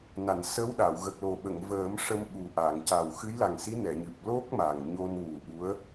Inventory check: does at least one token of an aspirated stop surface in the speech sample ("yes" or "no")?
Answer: no